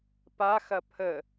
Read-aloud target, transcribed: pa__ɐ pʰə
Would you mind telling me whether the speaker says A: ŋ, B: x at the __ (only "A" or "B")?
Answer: B